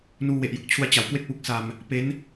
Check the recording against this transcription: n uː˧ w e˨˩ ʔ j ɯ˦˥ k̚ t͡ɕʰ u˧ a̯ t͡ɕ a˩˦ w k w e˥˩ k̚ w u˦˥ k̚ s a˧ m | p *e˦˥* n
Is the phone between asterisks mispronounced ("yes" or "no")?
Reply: no